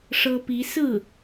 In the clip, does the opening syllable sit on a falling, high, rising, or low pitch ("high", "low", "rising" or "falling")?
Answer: high